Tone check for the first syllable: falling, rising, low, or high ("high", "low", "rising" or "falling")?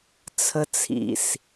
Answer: high